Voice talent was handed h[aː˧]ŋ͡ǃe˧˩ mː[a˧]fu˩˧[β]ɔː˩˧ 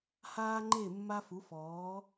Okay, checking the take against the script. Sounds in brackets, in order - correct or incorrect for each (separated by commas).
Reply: correct, correct, incorrect